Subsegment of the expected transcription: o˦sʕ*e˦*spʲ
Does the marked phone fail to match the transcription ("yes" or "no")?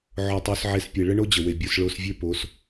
no